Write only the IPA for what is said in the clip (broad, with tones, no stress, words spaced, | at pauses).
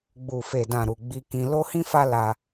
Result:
ɡ͡bu˨fe˨dã˨ɾu˨ ɡ͡bi˧kĩ˧ lo˦hĩ˦fa˦ la˧